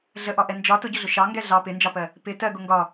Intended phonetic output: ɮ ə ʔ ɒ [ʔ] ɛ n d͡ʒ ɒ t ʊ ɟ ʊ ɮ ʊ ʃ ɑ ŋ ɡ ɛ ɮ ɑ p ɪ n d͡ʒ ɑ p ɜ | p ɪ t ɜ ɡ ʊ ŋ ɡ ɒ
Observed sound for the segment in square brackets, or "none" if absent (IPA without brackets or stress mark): ʔ